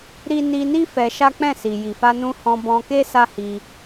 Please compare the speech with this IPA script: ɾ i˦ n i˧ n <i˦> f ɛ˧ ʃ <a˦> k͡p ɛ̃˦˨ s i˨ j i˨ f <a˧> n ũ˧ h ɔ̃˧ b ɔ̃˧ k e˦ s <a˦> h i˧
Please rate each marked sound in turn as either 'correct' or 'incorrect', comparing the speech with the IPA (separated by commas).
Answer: correct, correct, correct, correct